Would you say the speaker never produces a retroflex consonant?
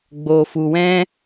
yes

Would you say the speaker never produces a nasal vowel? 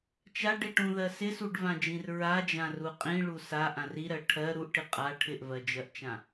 no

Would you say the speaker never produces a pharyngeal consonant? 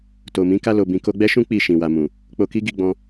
yes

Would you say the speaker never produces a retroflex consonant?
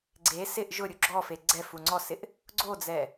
yes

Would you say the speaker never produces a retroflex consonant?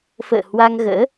yes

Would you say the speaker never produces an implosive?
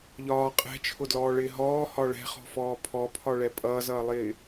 yes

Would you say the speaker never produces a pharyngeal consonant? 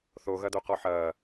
no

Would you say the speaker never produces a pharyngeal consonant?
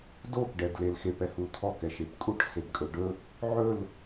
no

